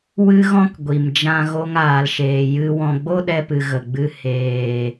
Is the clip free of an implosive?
no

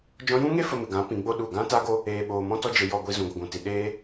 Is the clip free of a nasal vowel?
no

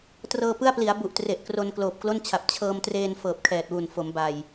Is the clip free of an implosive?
yes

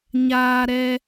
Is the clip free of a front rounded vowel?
yes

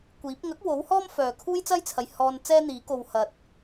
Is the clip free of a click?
yes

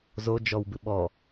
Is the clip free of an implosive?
no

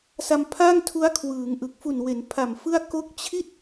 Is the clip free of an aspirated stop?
no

